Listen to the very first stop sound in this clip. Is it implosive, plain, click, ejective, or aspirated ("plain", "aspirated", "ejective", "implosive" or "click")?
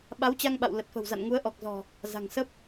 implosive